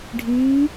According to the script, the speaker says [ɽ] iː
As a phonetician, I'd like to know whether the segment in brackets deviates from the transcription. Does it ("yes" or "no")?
yes